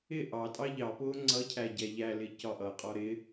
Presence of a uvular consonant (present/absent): present